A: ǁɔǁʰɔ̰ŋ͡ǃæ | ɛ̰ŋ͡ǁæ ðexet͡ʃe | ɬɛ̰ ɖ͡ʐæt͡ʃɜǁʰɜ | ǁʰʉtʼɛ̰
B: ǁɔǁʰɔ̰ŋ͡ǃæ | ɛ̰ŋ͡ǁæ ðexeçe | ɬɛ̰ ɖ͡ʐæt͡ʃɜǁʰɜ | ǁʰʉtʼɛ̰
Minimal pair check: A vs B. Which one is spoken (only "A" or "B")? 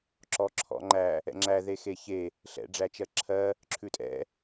B